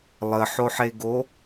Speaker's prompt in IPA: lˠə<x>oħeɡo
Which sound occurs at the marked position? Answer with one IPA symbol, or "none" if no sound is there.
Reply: ħ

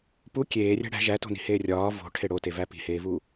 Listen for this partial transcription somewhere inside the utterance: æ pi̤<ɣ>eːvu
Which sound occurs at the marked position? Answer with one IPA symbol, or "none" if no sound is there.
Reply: h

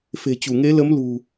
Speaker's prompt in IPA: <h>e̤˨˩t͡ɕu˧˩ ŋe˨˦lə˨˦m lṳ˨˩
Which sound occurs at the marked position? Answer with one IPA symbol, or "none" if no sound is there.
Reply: f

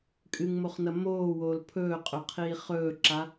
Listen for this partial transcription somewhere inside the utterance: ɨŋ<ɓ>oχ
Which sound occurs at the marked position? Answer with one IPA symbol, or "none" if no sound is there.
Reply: m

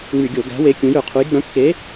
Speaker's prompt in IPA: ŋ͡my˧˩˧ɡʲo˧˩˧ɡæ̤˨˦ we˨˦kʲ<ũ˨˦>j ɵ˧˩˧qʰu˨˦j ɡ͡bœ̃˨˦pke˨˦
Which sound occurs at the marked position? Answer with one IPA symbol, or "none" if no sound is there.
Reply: ũ˨˦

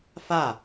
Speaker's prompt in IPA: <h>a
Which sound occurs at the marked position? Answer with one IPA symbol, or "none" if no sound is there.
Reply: f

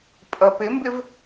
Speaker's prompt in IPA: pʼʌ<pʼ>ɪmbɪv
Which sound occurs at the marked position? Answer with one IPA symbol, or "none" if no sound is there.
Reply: p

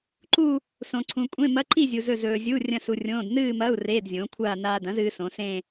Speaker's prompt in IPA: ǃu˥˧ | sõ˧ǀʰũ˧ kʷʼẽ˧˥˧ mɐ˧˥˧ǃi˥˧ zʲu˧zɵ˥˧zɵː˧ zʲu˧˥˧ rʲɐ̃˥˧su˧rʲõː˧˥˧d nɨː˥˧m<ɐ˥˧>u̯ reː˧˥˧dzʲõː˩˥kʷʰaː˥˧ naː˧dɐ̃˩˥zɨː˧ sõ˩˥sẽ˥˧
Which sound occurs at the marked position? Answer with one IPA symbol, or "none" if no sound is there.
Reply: ɐ˧˥˧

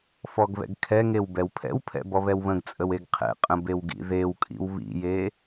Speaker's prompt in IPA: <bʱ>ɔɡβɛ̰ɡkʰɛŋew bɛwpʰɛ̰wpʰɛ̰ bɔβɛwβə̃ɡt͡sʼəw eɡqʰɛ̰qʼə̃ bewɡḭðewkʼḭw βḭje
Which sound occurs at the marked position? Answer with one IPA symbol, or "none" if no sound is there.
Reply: f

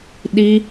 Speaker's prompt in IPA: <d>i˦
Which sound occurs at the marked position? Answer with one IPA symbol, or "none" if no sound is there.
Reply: ɗ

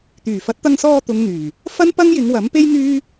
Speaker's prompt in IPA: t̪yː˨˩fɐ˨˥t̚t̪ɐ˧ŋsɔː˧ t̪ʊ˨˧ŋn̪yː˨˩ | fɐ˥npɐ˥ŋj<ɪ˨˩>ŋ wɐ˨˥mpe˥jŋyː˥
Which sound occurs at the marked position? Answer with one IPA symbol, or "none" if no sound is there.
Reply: ɪ˨˧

